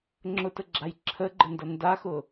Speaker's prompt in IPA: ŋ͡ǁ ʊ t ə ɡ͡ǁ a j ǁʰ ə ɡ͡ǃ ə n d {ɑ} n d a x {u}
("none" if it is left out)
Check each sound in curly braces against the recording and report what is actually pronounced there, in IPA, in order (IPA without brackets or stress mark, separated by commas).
ʌ, ʊ